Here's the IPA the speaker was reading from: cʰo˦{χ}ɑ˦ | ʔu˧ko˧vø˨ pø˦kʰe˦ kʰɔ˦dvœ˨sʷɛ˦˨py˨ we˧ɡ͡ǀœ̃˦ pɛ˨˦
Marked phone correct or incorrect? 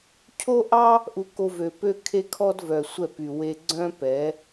incorrect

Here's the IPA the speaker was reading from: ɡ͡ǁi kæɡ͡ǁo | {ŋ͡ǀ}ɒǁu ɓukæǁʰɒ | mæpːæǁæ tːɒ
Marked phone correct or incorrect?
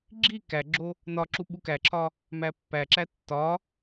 incorrect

